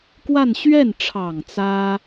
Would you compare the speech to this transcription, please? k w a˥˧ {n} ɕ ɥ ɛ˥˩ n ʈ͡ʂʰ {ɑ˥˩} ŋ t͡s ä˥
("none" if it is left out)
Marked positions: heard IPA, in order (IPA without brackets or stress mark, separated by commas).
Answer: n, ɑ˨˩